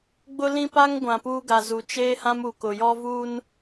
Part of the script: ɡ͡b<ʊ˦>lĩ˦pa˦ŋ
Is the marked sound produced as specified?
yes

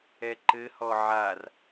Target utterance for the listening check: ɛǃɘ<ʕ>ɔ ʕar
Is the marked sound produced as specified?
no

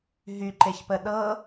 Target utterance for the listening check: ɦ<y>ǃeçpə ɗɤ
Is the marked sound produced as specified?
yes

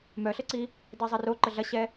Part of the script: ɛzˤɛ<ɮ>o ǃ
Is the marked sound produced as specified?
no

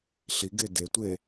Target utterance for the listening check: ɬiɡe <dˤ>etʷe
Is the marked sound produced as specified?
no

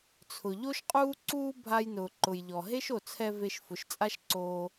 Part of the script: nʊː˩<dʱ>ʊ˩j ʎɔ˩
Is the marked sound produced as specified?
no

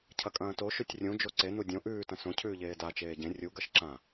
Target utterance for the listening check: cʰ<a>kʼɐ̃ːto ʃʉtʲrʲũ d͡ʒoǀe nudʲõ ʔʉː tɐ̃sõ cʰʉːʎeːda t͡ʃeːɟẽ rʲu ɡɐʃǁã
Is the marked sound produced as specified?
no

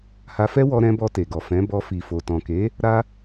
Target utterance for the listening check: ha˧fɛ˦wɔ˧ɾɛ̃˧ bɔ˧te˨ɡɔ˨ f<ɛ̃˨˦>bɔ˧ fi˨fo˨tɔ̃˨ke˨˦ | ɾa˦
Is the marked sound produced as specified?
yes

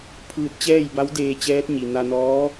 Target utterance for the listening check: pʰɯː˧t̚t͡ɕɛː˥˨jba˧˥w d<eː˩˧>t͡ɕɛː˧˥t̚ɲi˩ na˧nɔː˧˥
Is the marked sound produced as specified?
no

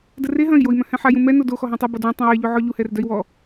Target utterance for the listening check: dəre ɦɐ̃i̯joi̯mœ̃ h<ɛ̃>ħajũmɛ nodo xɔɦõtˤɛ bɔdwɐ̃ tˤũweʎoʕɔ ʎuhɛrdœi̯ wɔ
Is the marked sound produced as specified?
yes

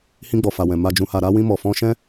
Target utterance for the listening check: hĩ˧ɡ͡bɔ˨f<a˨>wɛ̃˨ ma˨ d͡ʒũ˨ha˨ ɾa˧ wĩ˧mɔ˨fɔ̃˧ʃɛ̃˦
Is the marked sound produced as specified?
yes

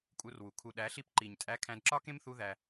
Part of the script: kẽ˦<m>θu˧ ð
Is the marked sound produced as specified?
yes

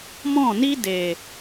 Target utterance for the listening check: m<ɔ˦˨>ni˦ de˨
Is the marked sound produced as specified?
no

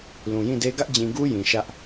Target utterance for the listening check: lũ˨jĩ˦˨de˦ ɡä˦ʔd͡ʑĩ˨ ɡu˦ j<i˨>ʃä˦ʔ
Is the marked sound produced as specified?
no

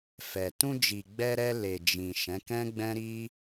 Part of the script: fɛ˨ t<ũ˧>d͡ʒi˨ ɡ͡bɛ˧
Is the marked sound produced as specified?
yes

